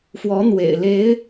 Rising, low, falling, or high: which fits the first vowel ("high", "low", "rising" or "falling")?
rising